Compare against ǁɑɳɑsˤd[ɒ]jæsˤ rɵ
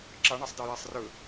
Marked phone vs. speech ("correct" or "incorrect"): incorrect